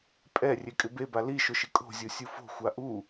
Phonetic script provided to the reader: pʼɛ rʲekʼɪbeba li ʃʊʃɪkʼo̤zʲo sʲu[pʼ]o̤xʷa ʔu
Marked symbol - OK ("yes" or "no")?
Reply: no